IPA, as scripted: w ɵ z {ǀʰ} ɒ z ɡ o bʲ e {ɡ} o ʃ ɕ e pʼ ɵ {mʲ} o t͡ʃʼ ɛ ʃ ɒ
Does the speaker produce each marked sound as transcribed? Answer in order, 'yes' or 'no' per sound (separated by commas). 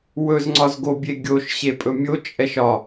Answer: no, no, yes